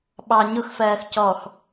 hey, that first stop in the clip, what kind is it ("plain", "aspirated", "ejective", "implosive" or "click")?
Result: implosive